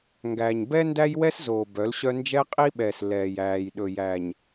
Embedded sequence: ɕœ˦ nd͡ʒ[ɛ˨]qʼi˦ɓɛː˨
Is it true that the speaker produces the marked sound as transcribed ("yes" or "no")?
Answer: no